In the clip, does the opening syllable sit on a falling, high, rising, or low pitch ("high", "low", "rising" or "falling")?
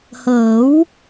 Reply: rising